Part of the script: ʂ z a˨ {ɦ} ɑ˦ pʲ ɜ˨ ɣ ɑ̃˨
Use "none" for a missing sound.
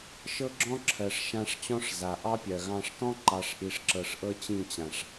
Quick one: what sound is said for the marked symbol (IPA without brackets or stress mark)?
ʔ